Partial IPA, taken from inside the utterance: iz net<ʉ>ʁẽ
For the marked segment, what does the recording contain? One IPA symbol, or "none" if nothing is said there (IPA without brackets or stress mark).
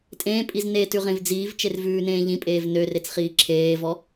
ʉ